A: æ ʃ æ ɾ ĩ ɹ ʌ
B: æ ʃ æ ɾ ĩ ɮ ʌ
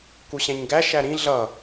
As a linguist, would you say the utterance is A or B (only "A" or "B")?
B